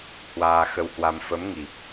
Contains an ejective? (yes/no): no